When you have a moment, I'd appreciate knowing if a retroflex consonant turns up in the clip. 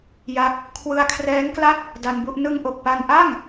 no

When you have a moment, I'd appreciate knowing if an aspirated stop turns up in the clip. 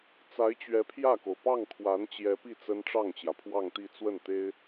yes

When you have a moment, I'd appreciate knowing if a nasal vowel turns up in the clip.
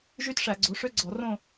yes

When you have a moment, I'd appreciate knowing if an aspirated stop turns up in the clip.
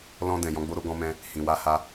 no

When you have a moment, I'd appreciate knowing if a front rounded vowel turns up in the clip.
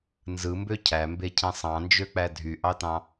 yes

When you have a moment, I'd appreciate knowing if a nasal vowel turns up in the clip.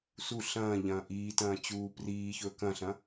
yes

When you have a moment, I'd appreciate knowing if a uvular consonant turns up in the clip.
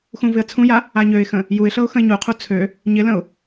yes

